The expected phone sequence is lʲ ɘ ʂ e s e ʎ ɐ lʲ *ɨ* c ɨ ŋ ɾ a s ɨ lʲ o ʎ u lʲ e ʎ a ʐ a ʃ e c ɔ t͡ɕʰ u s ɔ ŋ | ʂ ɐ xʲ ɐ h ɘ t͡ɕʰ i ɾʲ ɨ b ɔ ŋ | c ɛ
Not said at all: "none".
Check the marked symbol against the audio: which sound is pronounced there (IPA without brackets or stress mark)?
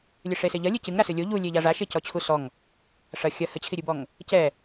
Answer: ɨ